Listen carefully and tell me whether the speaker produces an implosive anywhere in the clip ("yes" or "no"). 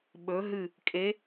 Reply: yes